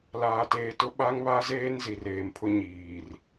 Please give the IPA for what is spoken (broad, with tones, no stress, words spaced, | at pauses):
laː˨teː˨tʊ˦ ɓa˦ŋβa˦zeː˦n zi˨reː˨mpʰʊ˦ ɲiː˨r